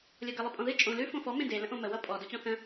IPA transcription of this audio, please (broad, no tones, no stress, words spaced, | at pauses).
lʲɔɡə lˠəpʼɔ̃ðɨ t͡ʃʼõ lʉ fõfɔ mẽde lə̃ʔõmə wʌpʼɔ dot͡ɕɔ̃θə̃